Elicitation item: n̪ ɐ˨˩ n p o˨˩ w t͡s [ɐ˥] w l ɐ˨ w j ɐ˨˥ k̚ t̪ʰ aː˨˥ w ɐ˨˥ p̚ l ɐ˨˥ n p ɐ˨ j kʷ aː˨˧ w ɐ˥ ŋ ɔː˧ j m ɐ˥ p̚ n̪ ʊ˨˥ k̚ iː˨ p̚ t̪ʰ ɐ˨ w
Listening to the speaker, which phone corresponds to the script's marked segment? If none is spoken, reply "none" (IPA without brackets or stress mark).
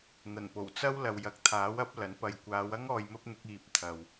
ɐ˥